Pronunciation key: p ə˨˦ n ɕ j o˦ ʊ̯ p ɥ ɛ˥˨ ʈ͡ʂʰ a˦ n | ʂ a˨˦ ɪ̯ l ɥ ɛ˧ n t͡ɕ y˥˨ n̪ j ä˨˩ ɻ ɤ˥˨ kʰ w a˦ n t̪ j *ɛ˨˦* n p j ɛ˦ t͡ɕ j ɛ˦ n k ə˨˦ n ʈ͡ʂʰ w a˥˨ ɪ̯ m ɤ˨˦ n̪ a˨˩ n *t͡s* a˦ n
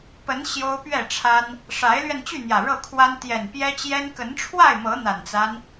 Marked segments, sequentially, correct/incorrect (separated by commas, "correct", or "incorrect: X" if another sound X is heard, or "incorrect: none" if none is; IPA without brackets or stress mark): incorrect: ɛ˨˩, correct